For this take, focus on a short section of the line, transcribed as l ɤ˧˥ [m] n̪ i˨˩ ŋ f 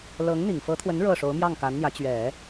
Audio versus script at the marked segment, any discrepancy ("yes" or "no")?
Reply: yes